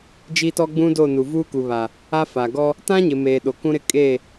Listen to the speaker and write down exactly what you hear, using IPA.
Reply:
d͡ʒ i˦ t ɔ˦ ɡ͡b ũ˦ d o˦˨ n u˨ v uː˦ k u˨ β a˨ | a˦ f a˨ ɡ ɔ˦ | t ã˦ ɲ ɪ˨ m eː˨ ɗ o˨ k ũ˦ ɾ ɪ˦ kʼ e˦˨

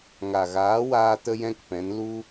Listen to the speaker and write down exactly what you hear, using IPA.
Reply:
ŋ a˨ ɣ aː˨˦ w aː˧ t ə˦ j ɛ̃˦ k p ɛ̃˨˦ n l u˦

